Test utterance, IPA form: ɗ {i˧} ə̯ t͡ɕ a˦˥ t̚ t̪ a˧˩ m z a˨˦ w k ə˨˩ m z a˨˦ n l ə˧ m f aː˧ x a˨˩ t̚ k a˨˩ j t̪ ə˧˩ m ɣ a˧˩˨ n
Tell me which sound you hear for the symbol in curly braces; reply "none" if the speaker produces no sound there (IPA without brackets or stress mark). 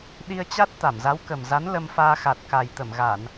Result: i˧